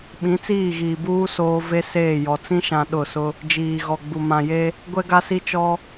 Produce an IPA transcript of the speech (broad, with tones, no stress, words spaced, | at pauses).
ɓĩ˨˦t͡siː˦˨ɣiː˨buː˦ soː˦ ve˦ seː˦˨jɔ˨ t͡sĩ˦ʃã˨ ɗʊ˦˨sʊ˦ | d͡ʒiː˨ɣɔ˨ɡ͡bu˨ mã˨je˦ | ɡʷɛ˦ɡa˦si˦ t͡ʃɔ˦